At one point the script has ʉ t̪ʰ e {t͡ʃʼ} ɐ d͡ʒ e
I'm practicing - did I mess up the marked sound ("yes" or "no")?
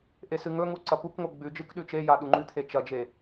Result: yes